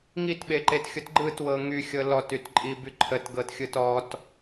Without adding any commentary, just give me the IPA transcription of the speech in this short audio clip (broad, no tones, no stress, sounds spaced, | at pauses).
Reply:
ŋ i t ɓ e ǃ e t xʲ ʊ t ɡ͡ǃ ɯ t w ɤ ŋ y xʲ ɤ l ɔ t y t ǃʼ i b y ǃʰ ə t ɡ ɤ t xʲ ɯ t ɔ t